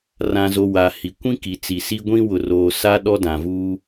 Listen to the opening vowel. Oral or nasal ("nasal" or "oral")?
nasal